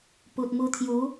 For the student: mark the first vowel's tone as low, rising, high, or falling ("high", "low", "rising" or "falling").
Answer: low